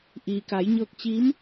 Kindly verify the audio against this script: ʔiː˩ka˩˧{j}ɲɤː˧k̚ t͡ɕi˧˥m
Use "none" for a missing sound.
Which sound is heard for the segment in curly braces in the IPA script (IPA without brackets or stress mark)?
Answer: j